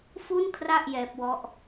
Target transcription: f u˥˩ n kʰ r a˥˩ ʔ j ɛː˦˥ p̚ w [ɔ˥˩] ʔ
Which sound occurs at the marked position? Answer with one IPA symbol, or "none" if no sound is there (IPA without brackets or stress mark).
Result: ɔ˥˩